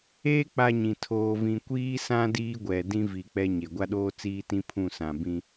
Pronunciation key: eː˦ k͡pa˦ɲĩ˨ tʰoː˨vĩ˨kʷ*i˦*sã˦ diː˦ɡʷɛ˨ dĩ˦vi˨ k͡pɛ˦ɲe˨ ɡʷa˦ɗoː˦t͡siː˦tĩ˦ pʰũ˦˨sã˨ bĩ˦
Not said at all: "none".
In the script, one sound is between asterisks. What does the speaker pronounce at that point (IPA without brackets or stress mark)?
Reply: iː˦